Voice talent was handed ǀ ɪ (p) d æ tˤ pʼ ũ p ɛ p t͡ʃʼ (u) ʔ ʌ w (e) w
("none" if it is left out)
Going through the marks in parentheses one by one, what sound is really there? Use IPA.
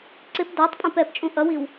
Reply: p, ũ, i

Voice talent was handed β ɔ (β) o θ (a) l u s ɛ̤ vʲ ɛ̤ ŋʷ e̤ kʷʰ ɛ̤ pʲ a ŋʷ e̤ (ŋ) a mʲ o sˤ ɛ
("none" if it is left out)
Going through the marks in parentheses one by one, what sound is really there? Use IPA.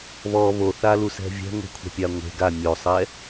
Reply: β, a, ɡ

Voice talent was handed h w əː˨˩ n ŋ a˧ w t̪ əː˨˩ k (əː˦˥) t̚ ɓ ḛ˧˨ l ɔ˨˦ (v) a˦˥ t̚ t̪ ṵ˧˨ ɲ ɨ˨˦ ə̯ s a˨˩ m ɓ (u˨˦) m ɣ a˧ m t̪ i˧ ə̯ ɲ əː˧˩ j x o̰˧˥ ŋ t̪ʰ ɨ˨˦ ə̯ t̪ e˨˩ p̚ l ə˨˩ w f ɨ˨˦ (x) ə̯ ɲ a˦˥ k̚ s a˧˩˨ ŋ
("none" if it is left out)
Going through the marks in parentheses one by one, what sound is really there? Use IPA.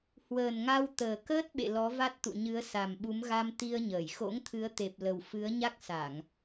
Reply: əː˦˥, v, u˨˦, none

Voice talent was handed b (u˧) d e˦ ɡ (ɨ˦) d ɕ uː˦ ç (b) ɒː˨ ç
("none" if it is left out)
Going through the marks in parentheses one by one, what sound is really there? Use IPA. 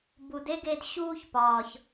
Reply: u˨, e˦, p

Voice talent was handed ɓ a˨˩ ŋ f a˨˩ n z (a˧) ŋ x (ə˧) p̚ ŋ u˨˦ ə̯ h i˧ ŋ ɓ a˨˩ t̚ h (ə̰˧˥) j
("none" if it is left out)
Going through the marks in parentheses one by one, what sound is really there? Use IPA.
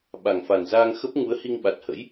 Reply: aː˧, ə˦˥, ə̰˧˥

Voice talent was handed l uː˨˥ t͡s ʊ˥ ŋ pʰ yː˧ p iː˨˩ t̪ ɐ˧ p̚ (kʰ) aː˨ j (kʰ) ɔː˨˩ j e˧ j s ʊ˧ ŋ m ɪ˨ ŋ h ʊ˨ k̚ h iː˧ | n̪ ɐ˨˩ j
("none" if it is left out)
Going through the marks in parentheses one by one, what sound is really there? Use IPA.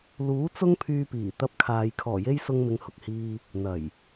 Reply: kʰ, kʰ

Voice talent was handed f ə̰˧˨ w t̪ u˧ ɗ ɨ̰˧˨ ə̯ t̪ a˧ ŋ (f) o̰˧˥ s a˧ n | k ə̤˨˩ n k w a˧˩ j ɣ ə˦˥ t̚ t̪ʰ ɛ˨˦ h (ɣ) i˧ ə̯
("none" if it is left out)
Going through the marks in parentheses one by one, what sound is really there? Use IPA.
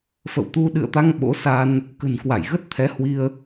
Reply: ɓ, w

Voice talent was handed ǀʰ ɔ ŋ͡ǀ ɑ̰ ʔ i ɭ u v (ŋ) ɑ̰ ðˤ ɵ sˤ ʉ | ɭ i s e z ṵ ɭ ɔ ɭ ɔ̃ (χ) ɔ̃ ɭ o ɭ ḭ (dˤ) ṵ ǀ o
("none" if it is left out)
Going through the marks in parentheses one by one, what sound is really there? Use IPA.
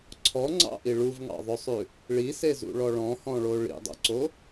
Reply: ŋ, h, dˤ

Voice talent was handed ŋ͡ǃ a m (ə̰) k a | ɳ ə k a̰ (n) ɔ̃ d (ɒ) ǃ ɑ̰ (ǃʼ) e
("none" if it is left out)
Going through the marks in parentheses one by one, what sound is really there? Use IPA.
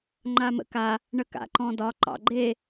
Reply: ə̰, ǃ, ɒ, ɡ͡ǃ

